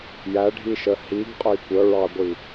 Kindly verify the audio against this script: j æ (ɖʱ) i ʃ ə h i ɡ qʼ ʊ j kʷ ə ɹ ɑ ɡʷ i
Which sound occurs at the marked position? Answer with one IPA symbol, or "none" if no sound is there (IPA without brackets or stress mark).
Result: ɖʱ